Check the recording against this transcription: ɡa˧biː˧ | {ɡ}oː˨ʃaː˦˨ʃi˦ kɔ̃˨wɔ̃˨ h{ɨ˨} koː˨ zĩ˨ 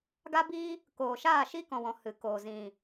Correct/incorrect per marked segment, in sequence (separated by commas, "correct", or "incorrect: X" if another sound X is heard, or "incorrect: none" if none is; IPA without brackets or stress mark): incorrect: k, correct